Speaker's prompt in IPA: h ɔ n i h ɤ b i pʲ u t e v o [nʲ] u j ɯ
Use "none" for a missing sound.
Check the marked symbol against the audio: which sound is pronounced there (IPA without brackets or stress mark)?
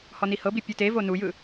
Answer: n